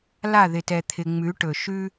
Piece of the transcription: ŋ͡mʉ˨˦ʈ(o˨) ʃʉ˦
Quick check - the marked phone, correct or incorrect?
incorrect